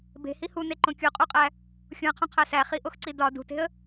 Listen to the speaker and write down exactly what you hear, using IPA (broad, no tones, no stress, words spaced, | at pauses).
be̤hi huneǃõ kʲuqʼuqʼæ | xʲũə̯qʰõqʰæ sæχiʔoxǀi dɒ dṳte̤ə̯